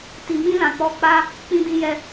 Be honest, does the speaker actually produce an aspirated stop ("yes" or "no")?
no